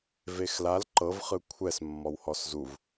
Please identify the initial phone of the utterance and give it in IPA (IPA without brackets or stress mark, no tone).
v